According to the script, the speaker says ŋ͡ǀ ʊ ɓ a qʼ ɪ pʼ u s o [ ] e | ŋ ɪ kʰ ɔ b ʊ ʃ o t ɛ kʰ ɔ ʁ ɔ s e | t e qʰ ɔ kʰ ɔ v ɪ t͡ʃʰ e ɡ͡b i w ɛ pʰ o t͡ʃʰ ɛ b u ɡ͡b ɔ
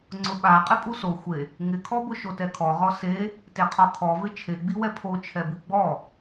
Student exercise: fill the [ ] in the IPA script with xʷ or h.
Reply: xʷ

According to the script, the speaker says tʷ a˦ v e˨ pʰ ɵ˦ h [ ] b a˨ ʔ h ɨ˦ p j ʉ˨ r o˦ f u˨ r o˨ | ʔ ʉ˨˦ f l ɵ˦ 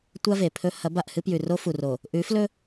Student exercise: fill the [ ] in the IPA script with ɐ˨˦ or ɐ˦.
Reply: ɐ˨˦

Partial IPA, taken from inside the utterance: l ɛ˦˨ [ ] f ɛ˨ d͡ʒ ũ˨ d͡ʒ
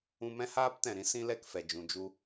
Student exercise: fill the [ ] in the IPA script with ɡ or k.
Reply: k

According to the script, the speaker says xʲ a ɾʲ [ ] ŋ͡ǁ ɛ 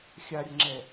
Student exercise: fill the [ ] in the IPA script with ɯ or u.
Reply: ɯ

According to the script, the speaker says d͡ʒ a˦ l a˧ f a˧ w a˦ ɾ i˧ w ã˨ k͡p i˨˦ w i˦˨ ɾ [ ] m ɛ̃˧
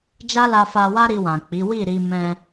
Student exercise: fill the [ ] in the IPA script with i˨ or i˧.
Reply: i˧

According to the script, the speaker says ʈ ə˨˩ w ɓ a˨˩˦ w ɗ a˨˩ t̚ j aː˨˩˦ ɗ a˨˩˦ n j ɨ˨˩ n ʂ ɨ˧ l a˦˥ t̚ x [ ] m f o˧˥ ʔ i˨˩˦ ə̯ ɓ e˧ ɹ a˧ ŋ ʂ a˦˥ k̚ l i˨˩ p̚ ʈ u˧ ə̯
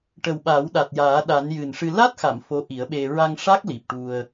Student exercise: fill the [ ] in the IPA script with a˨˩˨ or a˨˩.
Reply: a˨˩˨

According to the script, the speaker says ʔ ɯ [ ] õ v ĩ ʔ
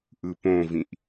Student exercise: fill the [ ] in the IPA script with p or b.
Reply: p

